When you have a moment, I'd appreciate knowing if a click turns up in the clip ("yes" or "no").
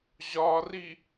no